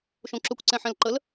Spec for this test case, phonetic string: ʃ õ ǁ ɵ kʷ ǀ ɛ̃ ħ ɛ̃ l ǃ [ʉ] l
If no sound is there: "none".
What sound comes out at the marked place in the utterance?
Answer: ə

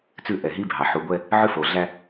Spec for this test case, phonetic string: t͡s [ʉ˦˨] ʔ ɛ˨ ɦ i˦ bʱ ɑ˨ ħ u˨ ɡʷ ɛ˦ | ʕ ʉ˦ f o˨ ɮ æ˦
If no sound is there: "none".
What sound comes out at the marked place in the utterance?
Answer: ʉ˦˨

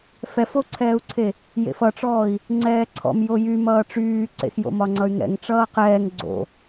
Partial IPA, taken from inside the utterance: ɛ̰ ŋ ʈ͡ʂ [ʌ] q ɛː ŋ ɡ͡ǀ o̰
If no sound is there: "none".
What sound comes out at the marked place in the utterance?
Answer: ʌː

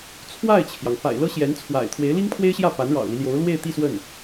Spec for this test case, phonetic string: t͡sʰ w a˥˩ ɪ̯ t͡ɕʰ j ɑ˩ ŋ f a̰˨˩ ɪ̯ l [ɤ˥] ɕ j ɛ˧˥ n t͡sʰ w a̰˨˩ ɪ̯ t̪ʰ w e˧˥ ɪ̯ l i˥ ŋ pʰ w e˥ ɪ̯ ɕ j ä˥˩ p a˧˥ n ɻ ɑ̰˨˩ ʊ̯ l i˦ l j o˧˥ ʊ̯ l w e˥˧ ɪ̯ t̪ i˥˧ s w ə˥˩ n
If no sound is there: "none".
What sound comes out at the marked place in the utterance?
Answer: ɤ˥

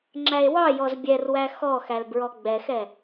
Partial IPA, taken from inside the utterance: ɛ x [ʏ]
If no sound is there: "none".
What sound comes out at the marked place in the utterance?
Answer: ɛ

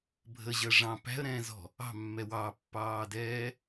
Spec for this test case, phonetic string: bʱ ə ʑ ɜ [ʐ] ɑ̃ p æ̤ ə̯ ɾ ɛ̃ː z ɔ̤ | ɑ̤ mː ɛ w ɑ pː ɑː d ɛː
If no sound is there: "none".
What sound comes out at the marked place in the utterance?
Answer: ʐ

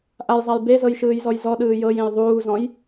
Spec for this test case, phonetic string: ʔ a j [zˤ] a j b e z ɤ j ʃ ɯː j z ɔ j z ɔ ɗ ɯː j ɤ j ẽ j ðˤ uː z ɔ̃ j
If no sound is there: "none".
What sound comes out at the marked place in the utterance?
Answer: zˤ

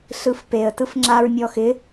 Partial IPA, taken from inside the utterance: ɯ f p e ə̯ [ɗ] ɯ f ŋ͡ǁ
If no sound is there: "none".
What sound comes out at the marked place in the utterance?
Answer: t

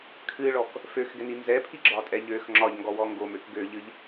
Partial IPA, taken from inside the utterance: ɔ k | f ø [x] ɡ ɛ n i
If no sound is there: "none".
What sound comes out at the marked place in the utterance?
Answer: x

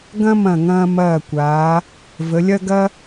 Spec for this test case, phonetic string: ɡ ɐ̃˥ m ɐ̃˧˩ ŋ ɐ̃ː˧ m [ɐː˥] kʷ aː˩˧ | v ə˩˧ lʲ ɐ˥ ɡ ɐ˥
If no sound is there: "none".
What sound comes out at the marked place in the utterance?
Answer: ɐː˧˩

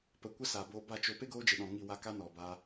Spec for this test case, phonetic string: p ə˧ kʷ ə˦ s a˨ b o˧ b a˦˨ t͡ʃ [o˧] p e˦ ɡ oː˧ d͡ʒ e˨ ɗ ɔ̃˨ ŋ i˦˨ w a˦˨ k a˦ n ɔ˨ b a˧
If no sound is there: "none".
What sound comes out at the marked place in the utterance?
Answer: o˧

